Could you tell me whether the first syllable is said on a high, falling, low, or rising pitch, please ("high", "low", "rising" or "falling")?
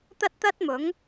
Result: high